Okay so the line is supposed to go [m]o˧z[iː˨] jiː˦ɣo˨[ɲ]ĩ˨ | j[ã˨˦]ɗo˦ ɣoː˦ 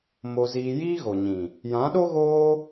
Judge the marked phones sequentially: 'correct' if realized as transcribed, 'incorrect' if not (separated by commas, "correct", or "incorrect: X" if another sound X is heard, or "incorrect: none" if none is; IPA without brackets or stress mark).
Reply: correct, incorrect: iː˧, correct, correct